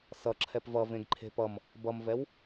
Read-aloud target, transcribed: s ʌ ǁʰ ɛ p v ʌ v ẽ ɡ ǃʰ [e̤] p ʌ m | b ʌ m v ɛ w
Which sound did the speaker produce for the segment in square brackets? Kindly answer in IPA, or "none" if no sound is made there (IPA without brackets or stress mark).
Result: e̤